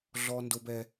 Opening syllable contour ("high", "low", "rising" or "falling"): high